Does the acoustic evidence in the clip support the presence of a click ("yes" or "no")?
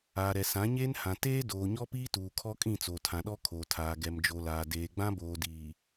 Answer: no